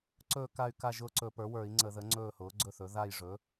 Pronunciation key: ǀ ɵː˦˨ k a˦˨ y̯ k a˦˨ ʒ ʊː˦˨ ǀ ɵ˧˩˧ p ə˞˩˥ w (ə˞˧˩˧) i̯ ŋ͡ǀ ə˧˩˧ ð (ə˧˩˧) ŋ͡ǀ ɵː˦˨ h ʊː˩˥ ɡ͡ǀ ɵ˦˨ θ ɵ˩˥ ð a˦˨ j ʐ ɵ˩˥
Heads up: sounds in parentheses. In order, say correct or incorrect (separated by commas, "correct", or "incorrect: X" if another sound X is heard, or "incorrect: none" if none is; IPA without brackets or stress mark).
correct, incorrect: ə˩˥